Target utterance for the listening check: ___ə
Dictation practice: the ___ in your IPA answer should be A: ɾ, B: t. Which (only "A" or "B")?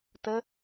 B